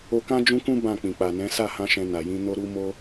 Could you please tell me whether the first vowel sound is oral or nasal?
oral